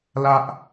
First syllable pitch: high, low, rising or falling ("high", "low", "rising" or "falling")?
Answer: high